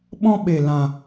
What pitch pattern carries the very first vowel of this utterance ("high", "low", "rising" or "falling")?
high